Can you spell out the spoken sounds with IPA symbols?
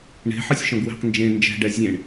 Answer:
ɳ e̤ ħ ɯ sʲ ʃ ɔ̃ ɡ w e̤ q n d͡ʒ ẽ n d͡ʒ ɛ̤ ɖ ɛ zʲ ẽ ɳ

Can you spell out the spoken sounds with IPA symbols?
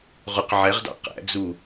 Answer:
ʁ ʊ q ʕ ɛ ʁ d ɑ̰ q æ̰ d͡z u

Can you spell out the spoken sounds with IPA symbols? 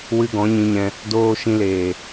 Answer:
w ɨ˧ ɡ ɔ̃˨˦ ɲ ĩ˧ ɲ ɛ̃˧ | d oː˧ ʃ ĩ˧ l eː˨

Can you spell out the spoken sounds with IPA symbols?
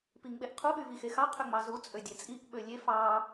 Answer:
p i ŋ ɓ e ʔ qʰ u ɓ y v i x e x ɑ qʰ ø ŋ͡m ɑ z u t͡sʼ ø dʲ e t͡sʼ i ʔ ɓ ø lʲ e f ɑ

